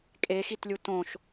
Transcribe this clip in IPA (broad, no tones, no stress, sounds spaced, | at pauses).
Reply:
kʼ e x i t lʲ u t õ ʃ